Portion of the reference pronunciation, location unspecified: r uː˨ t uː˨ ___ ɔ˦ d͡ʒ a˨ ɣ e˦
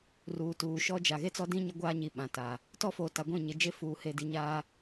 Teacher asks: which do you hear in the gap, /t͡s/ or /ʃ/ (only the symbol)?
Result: ʃ